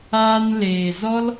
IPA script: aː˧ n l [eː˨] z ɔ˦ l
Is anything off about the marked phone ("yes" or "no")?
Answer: no